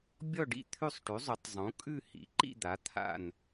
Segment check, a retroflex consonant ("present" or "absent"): present